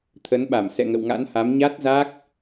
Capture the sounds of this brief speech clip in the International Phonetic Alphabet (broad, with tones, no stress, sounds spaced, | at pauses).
t̪ʰ ə˨˦ n ɓ a˧˩ m s ɛ̰˧˨ ŋ ə̰˧˨ w ŋ a̰˧˥ n h a˨˦ m ɲ a˦˥ t̚ z a˦˥ k̚